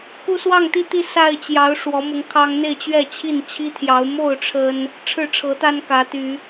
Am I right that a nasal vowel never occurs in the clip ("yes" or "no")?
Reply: yes